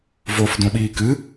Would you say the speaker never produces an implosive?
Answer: no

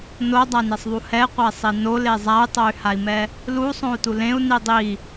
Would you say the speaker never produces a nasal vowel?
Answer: no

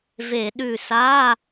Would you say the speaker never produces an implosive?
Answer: no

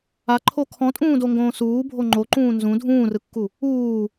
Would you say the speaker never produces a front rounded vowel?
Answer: yes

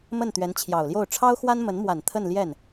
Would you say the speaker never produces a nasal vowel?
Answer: yes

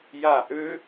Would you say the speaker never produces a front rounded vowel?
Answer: no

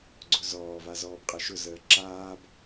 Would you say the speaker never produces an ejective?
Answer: no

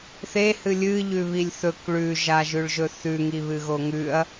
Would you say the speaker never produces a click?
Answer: yes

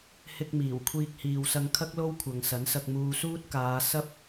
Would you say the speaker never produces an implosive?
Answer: yes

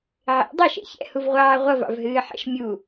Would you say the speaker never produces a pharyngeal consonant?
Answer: no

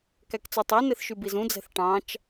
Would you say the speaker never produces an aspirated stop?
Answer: yes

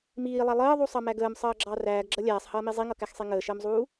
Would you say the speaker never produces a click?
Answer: no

